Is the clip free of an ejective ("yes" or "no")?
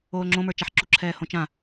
yes